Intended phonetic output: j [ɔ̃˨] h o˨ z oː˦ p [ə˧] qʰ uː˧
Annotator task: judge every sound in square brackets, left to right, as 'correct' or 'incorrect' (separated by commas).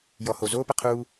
incorrect, correct